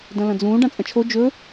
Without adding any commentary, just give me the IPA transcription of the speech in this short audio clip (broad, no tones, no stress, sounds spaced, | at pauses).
d ɐ̃ l ɐ̃ d͡z ũː ɖ ã t͡sʼ ɐ̃ t͡ʃʰ o d͡ʒ ɵ